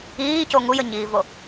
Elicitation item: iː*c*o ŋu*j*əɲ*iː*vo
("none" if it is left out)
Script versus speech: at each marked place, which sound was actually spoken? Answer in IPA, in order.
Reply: c, j, iː

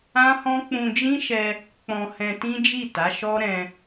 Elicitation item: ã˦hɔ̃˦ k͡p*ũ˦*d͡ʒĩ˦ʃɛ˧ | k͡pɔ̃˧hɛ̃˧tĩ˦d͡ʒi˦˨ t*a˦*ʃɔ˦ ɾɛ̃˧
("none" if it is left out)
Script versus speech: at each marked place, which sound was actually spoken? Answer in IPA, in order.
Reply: ũ˧, a˨˦

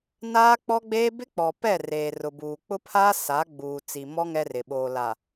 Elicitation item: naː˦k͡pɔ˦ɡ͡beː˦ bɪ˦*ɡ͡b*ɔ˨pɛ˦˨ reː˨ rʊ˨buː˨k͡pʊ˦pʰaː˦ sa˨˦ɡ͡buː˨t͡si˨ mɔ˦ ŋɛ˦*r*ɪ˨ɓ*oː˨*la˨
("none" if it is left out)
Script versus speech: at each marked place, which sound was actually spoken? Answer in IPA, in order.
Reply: k͡p, r, oː˨

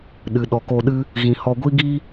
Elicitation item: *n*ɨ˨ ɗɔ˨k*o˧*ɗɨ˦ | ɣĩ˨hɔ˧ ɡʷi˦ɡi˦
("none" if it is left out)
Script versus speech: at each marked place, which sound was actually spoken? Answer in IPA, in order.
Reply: ɗ, o˧

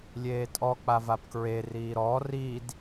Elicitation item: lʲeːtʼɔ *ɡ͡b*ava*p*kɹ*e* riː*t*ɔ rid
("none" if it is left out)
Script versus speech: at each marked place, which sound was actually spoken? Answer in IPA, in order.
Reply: k͡p, p, e, ɾ

